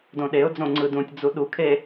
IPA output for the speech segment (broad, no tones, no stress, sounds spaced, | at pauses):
d õ ɗ e ʊ̯ d͡z õ ŋ͡ǀ ɯ d ũ tʲ d͡z u ɗ u kʰ e